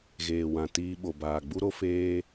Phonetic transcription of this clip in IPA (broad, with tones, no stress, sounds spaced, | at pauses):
ɣ eː˨ w ã˨ t iː˧ ɓ o˨ b aː˨ ɡ͡b u˦ ɾ o˦ f eː˦